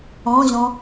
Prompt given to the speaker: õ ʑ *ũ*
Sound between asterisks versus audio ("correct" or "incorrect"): incorrect